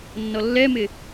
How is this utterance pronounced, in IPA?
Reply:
nː ɔ lː ɛ m ɪ

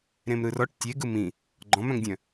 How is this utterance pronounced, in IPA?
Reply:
ɾ ẽ m ɾ ɯ r ɔ ʈ tʲ e ɡ ɯ m ĩ | ɡ͡ǃ ɔ̃ m œ̃ ŋ dʲ œ̃

